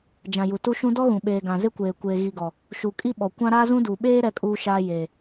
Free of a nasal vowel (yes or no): no